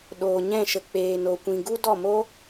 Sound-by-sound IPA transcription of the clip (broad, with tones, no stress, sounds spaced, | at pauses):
ɗ oː˨ ɲ ɛ̃˦˨ ʃ ə˨ k͡p eː˨ n o˨ kʷ ĩ˨ ɡ u˦ d ɔ˦˨ m o˦